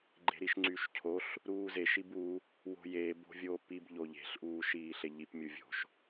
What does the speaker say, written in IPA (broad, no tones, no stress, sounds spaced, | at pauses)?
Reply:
ɡ͡ǃ e̤ ɾ i ʃ ŋ͡ǀ yː ʃ cʰ o ɬ | ɾ uː z e ʃ i b u | w o̤ j eː b o̤ vʲ oː p i b ʎ o ʎ e̤ ɬ ʔ uː ʃ iː ɬ e ʎ i p mʲ u vʲ o̤ ʃ